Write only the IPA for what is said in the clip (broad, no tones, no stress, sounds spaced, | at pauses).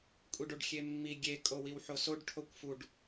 kʷʼ i ɖ o ɖ xʲ e mː i ɡʲ e kʼ o w i w ħ o s o ɖ ʈʰ o kʷ f u ɖ